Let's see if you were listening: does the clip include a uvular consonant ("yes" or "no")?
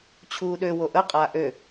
yes